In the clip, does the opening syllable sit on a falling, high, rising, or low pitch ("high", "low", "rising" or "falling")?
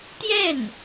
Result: falling